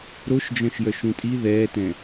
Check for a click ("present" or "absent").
absent